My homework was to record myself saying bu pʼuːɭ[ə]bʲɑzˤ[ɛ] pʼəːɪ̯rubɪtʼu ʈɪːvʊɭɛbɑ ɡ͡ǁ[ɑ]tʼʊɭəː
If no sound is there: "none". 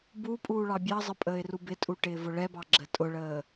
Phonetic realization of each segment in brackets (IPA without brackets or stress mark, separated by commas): ɑ, ə, ə